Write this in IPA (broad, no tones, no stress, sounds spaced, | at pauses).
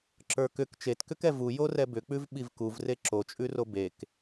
ǁ ə˞ k ʏ k t͡ʃ e t k ʏ k ɛ v u j o r ɛ b ʏ k͡p ʉ v ɓ i v k u v r e ǁ o t͡ʃʼ ʉ r o b e k